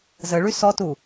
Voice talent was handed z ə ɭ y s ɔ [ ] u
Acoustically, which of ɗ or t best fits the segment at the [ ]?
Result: t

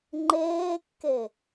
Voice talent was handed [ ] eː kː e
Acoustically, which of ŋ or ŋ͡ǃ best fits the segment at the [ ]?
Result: ŋ͡ǃ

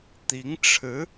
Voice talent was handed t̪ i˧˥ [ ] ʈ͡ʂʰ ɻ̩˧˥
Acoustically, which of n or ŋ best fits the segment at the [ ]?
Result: ŋ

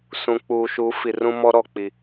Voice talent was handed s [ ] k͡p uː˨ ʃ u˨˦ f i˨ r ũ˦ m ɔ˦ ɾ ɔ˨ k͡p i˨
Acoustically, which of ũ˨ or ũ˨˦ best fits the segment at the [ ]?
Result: ũ˨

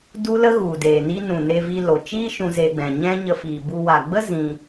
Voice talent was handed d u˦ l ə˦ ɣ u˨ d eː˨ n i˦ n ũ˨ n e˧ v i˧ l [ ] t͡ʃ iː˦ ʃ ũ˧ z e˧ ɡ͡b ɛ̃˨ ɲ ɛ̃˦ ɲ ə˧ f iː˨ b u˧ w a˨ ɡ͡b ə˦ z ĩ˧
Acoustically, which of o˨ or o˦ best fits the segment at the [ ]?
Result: o˨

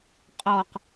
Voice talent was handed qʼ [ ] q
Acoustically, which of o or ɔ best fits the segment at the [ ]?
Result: ɔ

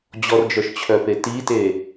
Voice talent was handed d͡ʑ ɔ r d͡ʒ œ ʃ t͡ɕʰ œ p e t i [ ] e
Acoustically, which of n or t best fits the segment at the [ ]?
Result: t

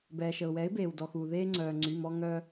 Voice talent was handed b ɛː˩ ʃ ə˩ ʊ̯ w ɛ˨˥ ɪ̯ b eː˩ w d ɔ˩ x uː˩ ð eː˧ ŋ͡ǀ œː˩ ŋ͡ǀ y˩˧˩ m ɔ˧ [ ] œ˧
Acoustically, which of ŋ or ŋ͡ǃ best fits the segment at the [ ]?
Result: ŋ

